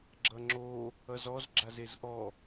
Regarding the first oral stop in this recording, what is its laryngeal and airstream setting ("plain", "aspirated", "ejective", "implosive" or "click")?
click